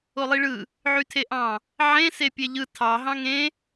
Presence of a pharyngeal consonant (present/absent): present